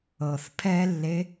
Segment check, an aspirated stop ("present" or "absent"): present